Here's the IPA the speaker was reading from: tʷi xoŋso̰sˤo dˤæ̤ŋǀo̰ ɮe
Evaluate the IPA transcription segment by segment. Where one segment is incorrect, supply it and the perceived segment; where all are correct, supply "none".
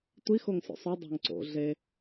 none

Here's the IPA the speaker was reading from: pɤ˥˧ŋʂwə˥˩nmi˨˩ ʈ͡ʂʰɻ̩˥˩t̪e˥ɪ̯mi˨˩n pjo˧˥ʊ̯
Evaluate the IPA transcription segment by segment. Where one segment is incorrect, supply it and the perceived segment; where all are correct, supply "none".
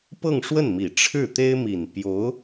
none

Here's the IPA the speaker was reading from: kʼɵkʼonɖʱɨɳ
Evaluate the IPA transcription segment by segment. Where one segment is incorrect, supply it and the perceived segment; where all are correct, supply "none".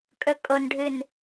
ɳ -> n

